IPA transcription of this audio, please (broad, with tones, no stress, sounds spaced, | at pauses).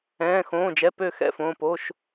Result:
ɛ̃ː˩˧˩ x õː˩˧˩ d͡ʒ ɛ˩˧˩ p ø˥˩ x ɛ̰˥˩ f õː˩˧˩ p o˩˧˩ ʃ